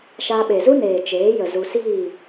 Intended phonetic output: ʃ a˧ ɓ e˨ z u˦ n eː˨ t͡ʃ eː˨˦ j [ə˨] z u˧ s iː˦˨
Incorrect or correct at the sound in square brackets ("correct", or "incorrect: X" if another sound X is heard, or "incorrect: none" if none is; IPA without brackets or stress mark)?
correct